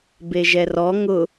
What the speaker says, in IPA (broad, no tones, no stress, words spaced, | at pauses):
beʒɛrɔ ŋʊ